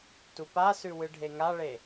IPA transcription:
t u p a s ʉ w ɨ ɖʱ e ŋ a ɭ e

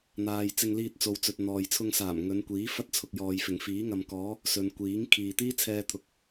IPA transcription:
n̪ aː˨ j t͡s ɪ˧ ŋ l iː˧ t̚ t͡s o˨ w t͡s ɵ˨ t̚ n̪ ɔː˨ j t͡sʰ ʊ˧ ŋ s aː˨˩ m ŋ ɵ˨˧ n kʷ iː˨˥ f ɐ˥ t̚ t͡sʰ ʊ˨ k̚ j ɔː˨ j f ɪ˨˩ ŋ f iː˨˥ ŋ ɐ˨ m k ɔː˨˥ | s ɵ˨ n kʷ iː˨˥ ŋ kʰ iː˨ t̪ iː˥ t͡sʰ ɛː˧ t̪ʰ ʊ˨ k̚

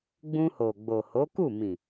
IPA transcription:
ɡ͡b ũ˧ h o˨ ɡ͡b o˨ h o˨˦ k u˦˨ m ĩ˨

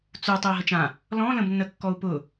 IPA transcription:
t͡s u tˤ u i̯ ɦ ə t͡ʃ ã | l ɔ̃ l ə̃ b nː ə kː ɔ u̯ p ʊ

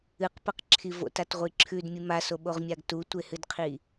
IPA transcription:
ɨ q p ɐ q ǁʰ i v o̰ t a t ʁʷ i ǁʰ ʉ d mʲ ɨ m a s o ɓ o ʁ mʲ a ɡ t u tʷ e h ɨ d qʰ i

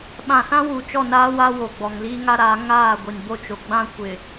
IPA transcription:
ɓ ã˨ s ã˦ w u˨ t͡ʃ ɔ˦˨ n aː˦ w a˦ w o˨ ɡ͡b ɔ˨ ŋ l iː˦ ŋ a˦ ɾ aː˨˦ ŋ aː˦˨ ɡʷ i˨ n b o˦ t͡ʃ o˨ ɡ͡b ã˦ kʷ ɪ˨

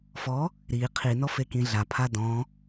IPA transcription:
f ɔ | ɾ i qʰ i n ɔ f e k ĩ ɮ a pʰ a d ɔ̃

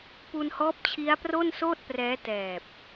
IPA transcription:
p u˧ n h ɔː˦˥ p̚ t͡ɕʰ i˦˥ a̯ p r o˥˩ n s oː˥˩ t̚ p r ɛː˦˥ t ɛː˨˩ p̚

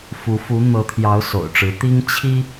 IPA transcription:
f u˨˦ f u˨˦ n̪ ɤ˨˦ t̪ʰ j ɑ˨˦ ʊ̯ s o̰˨˩ ʊ̯ ʈ͡ʂ ɻ̩˨˦ t̪ i˦ ŋ t͡ɕʰ i˦

